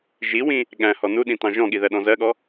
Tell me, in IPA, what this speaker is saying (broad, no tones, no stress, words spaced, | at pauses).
ʒiwĩ | ɠæ̃hɔ nuɗĩtɑ̃ ʒɔ̃ɠiðɜɗɔ̃ zɜɠɔ